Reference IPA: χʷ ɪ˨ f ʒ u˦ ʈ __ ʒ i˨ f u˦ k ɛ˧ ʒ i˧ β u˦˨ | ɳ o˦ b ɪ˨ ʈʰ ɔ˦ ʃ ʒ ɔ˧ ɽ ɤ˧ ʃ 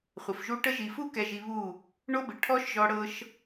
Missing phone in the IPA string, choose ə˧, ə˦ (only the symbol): ə˦